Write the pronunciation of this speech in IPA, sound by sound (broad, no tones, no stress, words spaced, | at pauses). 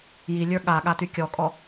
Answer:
jilʲə˞ ɠa ɠatykʲɔkʼɔ